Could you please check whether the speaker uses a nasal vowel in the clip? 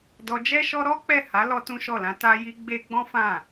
yes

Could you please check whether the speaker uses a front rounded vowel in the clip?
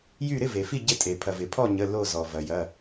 yes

